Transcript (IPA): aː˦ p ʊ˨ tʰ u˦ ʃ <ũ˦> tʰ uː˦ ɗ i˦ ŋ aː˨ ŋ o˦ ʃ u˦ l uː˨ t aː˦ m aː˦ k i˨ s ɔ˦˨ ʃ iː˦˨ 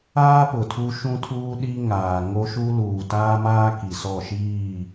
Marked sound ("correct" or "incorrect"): correct